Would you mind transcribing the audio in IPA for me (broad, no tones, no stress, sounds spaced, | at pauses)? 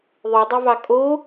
ðˤ y dˤ ø v ɑ kʼ o